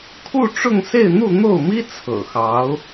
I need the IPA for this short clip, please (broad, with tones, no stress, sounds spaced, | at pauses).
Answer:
kʰ u˥˧ ʈ͡ʂ ʊ˥˧ ŋ s e˥˧ ɪ̯ n̪ u˥˧ n̪ o˥˩ ʊ̯ m i˥ t͡sʰ ɤ̰˨˩ x ɑ˧˥ ʊ̯